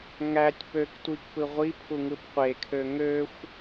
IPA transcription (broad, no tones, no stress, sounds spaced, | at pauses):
ŋ æ tʲ p ø k tʷ i k p ɯ ʁʷ i pʰ u ŋ ɯ p qʷ e kʰ ø ŋ ø xʷ